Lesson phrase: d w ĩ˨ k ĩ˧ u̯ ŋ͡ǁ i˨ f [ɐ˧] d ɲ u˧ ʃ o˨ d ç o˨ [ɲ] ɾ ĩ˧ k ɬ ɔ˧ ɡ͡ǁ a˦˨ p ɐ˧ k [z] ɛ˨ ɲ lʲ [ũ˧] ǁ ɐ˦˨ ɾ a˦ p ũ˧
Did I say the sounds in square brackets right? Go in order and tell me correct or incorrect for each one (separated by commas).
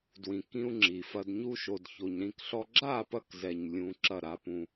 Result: correct, correct, correct, correct